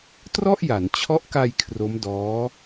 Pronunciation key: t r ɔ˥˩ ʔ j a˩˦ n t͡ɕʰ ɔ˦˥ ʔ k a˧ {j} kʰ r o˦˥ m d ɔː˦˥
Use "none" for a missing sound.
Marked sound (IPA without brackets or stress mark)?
j